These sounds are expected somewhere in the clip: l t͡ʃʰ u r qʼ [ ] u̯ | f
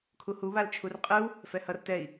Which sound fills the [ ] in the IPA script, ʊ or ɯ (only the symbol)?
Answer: ɯ